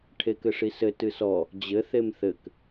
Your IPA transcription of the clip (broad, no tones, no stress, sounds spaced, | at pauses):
ʈʰ e k ɘ ʂ i s ɘ t ɨ s ɔ | d͡ʑ ɘ θ e m θ ɘ k